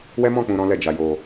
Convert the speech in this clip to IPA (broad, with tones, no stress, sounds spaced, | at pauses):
w ɛ˦ m ɔ̃˦˨ k͡p ũ˧ ɾ ɔ̃˦ l ɛ˦˨ d͡ʒ a˧ j o˧